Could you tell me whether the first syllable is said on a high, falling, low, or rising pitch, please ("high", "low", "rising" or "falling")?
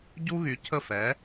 high